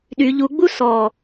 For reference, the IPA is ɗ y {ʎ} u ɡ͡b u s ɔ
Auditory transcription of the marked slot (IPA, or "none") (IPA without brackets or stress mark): ʎ